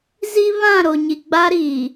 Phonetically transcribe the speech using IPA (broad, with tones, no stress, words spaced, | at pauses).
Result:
zi˦βã˦˨ ɾo˨ɲi˨ ɡ͡ba˦ɾiː˨